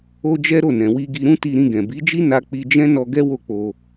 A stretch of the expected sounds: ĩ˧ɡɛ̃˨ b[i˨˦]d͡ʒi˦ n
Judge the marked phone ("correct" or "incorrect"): correct